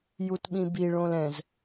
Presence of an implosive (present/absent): present